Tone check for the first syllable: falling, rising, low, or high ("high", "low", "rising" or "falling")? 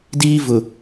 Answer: high